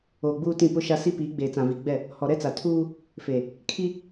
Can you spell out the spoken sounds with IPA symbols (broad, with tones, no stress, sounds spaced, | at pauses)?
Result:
oː˨ ɡ͡b uː˦ t ĩ˦˨ p ʊ˦ ʃ a˦ s i˦ p iː˨˦ ɡ͡b eː˨ t͡s ã˨ v i˨ ɡ͡b ɛ˦˨ | h ɔ˨ ɾ ɛ˦ t͡s a˨ tʰ uː˦ | f e˨ | kʰ i˦